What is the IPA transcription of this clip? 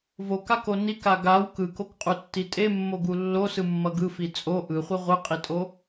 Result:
v o k a k o n i k a ɡ a w k ɯ k o k qʼ u tː i tʼ e mː o ɡ u lː o s ɯ mː ʌ ɡ ɯ f i t͡sʼ o ʔ ɯ χʷ ɯ ʁʷ ɯ qʼ i tʼ o

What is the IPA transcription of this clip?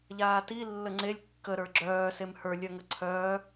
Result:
ʎ aː t i lː ə ŋ͡ǀ e lʲ kː ə ɾ ə˞ ɡ͡ǁ œː s e m h ə˞ lʲ œ ŋ ə ǀʰ œː

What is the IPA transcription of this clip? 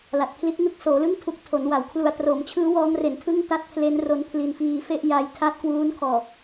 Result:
l a˨˩ t̚ pʰ l i˦˥ t̚ ŋ ɯ˥˩ k̚ s oː˩˦ l ɯ˥˩ ŋ tʰ u˨˩ k̚ tʰ o˩˦ n w a˩˦ w kʰ l u˧ a̯ t r o˩˦ m t͡ɕʰ ɯː˦˥ w ɔː˦˥ ŋ r e˩˦ n tʰ ɯ˥˩ ŋ t a˦˥ t̚ pʰ l e˦˥ n r o˧ n pʰ l i˧ n f iː˧ f e˥˩ ʔ j a˦˥ j tʰ a˦˥ t̚ k w uː˦˥ n kʰ ɔː˨˩

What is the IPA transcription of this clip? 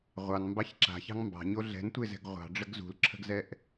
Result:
ʁʷ ɑ n m b ɑ ç ǁ a̤ ç ɑ̤ ŋ m b ɑ̤ ɲ o ɮ ɛ̤ n tʷ e z ɛ̤ ɡ ʁʷ ɑ̤ ɖ͡ʐ ə ɡ z ṳ l ǁʰ ə̤ ɡ z ɛ ʔ

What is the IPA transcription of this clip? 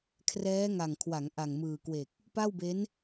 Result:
kʰ r ɛː˦˥ ŋ a˨˩ ŋ kʰ w a˩˦ ŋ ʔ a˨˩ ŋ m ɯː˨˩ k w e˨˩ k̚ | p a˥˩ w b e˦˥ n

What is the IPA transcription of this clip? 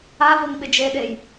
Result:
a v ʊ ŋ ɓ ɪ d͡ʒ e ɗ e j

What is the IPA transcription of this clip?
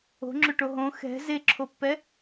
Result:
o̤ ŋ͡ǁ ø ʈ o ɦ õ x ɛ̤ z e ǁʰ o pː ɛ

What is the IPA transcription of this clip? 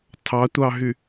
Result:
tʰ ɑ tʷ ɑ ɦ y

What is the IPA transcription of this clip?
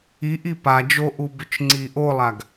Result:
i ʔ i p a d͡ʒ o ʔ u b ʏ t͡ʃ ŋ͡ǀ i ʔ o lˠ a ɡ

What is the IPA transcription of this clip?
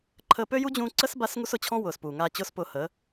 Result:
ǃʰ əː˧ p ø˦ j u˦ d͡ʑ ũː˧ ǀ əː˦ s b a˦ s ŋ u˦ s ʊ˨ t͡ɕʰ ɔ̃˦ w ʊː˨ s p uː˨ ŋ aː˧ t͡ɕ ʊː˦ s p ʊː˧ h əː˨˦

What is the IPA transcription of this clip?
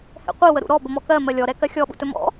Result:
h ɛ̰ qʷ i w ə ɾ ṵ ɾ ɔ b ə m ɔ k ɜ m ɜ lʲ ɔ ɾ ɛ k ɜ xʲ ɔ ɓ ṵ t ɵ m ɔ̰

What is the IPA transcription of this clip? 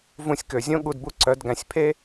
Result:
v ũ˧ sʲ k ø˨ zʲ õ˦ ɠ u˧ d b u˦ ǀ œ˨˦ d ɡ æ̃˨ sʲ pʰ e˦

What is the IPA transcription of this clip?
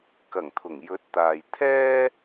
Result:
k ɐ˨˩ ŋ t̪ʰ ʊ˨˩ ŋ j ɵ˨˥ t̚ t̪ aː˨ j t̪ʰ ɛː˥

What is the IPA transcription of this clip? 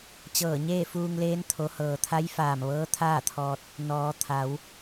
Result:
t͡ɕ ɤː˧˩ ɲ eː˥˨ f uː˧ ŋ l eː˧˥ n t̪ʰ o˩˧ h ɤː˩ t̪ʰ a˧˥ j f aː˧˩ m ʋ ɤː˧˥ t̪ʰ aː˥˨ t̪ʰ ɔː˧ t̚ | n ɔː˩˧ t̪ʰ a˩˧ w

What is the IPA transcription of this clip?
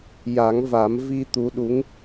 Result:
j a˨˩˦ ŋ v a˨˩˦ m v i˧ t̪ u˧˥ ɗ u˧˥ ŋ

